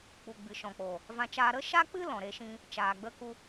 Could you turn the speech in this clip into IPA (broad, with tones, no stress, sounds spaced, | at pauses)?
k͡p u˨ ɡ͡b ɨ˨ ʃ ɔ̃˨ k͡p o˨ | v ã˧ t͡ʃ aː˧ ɾ ə˦ ʃ a˦ k͡p ɨ˦ l ɔ̃˨ ɾ e˧ ʃ ĩ˧ | t͡ʃ aː˨ ɡ͡b ə˧ k u˧